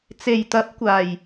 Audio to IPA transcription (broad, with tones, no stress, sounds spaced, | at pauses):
t͡s e˨˩ j t̪ ɐ˨˥ p̚ kʷ aː˨˩ j